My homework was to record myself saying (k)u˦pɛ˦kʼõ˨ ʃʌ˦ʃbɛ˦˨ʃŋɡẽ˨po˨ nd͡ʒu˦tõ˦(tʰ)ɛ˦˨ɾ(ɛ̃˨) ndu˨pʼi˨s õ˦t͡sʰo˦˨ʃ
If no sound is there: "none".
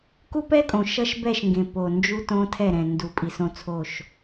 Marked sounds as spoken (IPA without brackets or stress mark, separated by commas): k, tʰ, ɛ̃˨